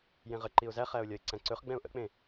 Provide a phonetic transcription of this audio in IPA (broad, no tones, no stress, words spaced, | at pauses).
jẽʁə ǃiʊ̯zæχæʊ̯ lʲɒɪ̯ǀæ̃ǀɵχ ɡ͡bɛ̃ʊ̯ʔə̰k͡pẽ